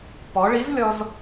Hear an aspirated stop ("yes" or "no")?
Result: no